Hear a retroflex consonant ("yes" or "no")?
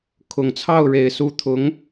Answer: yes